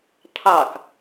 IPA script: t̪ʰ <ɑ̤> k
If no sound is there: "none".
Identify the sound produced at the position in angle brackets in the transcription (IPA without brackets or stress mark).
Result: ɑ